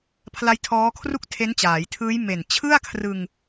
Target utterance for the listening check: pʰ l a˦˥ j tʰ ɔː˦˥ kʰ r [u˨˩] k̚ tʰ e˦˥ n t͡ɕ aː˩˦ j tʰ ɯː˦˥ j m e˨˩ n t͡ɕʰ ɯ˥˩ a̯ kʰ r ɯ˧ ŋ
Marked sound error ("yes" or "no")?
yes